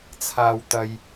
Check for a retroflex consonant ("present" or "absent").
absent